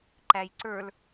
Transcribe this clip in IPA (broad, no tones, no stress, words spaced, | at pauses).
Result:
ǃæjǀə˞l